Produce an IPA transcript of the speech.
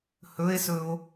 hɵe̯sɵo̯

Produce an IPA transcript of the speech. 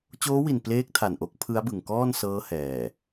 t͡ɕoː˦˥wi˨˩n pleː˦˥k̚tʰa˨˩nʔo˦˥k̚ pʰɯ˦˥a̯bɯ˨˩ŋkɔː˥˩nsɤː˦˥ hɛː˨˩

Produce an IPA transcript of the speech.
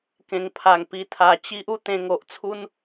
kẽ˨˩ŋpʰa˨˩ŋpi˧t̪ʰa˨˩ t͡ɕi˦ʔu˧ t̪ẽ˧ŋo˨ʔt͡sʰu˦n

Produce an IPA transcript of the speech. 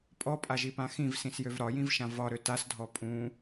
pʼɔpʼaʒipã xĩvsĩsjøv ɾɒjĩvʃã vɒɾø tasdʱɔ pʼũ

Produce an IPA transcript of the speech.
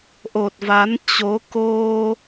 ʔo˨˩t̚va˨˦nt͡ɕo˨˦ ko˧

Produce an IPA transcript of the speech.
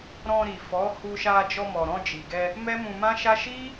ɾɔ̃˧ɾi˨fɔ˨˦hu˧ ʃa˧d͡ʒɔ˧mɔ˨ ɾɔ̃˧d͡ʒi˨ɡɛ˧ | mɛ˦mũ˧mã˦ʃa˦ ʃi˦

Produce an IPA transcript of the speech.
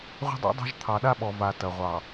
ʁʷə̤˦dˤa̰˦dˤa̤˦ʒ t̪ʰɑ˨ɗa˦ɓɔ˨ va˨ tɐ˨ʁʷɑ˨

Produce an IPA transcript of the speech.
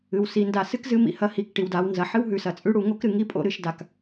ɨ˩˧wsi˩˧nda˧ sɨ˥kzɨ˧˥mḭ˩hɐ˧˥ hi˩˧kʈi˩wda˩˧w nzɐ˩ ħɨ˥wɦʉ˩˧sɐ˩t͡sʼʉ˧˥ ɽu˩˧ŋo˥kɾɨ˧ ŋi˥pʼo̰˥ɾɨ˩˧ʃda˩k

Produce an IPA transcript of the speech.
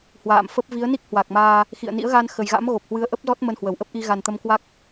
hwa̰ː˧˨mfə˦˥p̚ vi˨˦ə̯ni˦˥k̚ hwa˨˩k̚maː˧ | xḭ˧˨ə̯ nḭ˧˥ə̯ɣa˧nxə˨˩jɣa̰˧˥m ɣo˨˩p̚hwɨ˨˦ə̯ʔə˦˥p̚zɔ˦˥t̚ mə˧nhwə˧˩wʔə˦˥p̚ ʔi˧ ɣa˨˩n t̪ə˧mkwa˦˥k̚

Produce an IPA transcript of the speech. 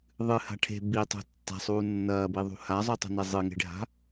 ðˤɨha̤ ʈʰe̤ bitˤṳ tːa̤sˤuː nːɐːbiðˤṳ hazˤʉtˤṳne zˤɨŋe̤ɖʱa̤

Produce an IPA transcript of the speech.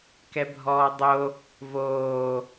kɛbʱɔːdˤo | voː

